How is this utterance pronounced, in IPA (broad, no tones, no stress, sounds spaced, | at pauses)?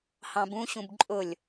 h ɑ̃ b ũ ɕ ũ b ǃʼ ʊ lʲ